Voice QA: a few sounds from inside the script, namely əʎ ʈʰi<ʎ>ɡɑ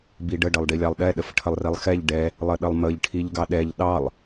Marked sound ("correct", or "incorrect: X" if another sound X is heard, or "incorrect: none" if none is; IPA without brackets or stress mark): correct